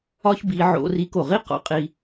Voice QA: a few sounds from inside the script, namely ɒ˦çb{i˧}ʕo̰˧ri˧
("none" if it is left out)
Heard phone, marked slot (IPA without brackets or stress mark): i˧